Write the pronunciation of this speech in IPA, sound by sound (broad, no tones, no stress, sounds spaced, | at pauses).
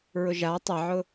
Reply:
ɹ ʊ ʒ a tˤ ə ʕ ʊ